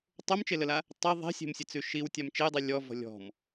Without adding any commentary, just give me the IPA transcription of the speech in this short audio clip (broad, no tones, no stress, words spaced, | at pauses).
tˤomt͡ʃeləla | tˤi ðˤe̤sʲe̤msʲet͡sʉ ʃiwtʲam t͡ʃejdˤi lʲɔvɔ̤ lʲɔ̤m